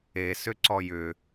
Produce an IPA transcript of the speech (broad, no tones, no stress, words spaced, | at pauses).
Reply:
esʏ ǀɔjʏ